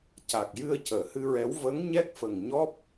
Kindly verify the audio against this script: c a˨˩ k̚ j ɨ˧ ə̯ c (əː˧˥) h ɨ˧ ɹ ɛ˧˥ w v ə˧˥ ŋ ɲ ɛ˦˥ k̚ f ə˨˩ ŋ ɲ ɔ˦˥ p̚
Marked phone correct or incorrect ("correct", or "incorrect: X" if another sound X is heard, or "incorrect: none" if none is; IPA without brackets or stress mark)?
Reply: incorrect: əː˨˩˨